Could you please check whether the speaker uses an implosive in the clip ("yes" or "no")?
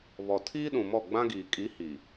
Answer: yes